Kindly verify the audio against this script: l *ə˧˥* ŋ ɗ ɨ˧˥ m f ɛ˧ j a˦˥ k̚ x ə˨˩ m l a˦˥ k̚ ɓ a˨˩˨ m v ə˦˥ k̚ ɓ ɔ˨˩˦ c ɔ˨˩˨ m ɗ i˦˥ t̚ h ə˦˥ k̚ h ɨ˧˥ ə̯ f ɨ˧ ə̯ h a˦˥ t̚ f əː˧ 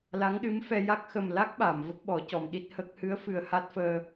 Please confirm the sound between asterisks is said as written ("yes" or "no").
no